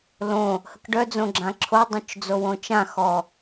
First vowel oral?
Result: no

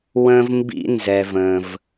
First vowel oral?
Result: no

